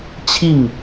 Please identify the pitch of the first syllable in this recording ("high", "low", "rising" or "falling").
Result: falling